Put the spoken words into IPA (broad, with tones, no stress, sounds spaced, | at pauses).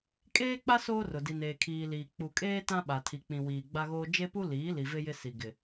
kʼ eː˦ k͡p a˦ s oː˦ r ʊ˨ d i˨ n eː˨ kʰ iː˨ l iː˨ k͡p u˨ kʼ eː˦ t ã˦ ɓ a˨ tʰ i˨ k͡p ĩ˨ w iː˨ ɡ͡b a˦ ɣ oː˦ d͡ʒ e˦ p u˦ l iː˨˦ l i˨ v e˦ j ɪ˦ s i˨ ɡ ɪ˨